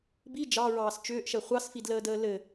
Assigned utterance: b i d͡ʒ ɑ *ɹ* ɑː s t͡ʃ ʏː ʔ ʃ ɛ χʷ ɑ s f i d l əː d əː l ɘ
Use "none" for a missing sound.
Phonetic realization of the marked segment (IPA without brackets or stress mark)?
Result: ɹ